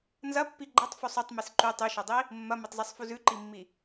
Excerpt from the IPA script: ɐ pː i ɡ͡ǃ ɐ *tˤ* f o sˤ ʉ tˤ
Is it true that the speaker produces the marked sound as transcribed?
yes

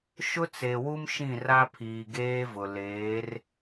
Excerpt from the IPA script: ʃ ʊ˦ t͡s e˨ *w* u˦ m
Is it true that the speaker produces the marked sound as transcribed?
yes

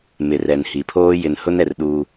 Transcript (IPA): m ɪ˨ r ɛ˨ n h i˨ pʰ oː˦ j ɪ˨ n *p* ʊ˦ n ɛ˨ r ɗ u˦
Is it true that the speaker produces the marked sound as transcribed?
no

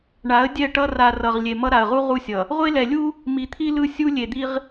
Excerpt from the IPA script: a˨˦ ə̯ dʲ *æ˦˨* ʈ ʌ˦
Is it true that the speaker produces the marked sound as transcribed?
no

